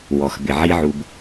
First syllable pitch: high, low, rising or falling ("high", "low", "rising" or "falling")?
low